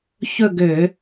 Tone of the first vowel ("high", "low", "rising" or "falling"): falling